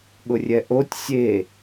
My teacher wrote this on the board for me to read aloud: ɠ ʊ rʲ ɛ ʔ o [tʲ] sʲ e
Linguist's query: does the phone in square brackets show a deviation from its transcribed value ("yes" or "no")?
no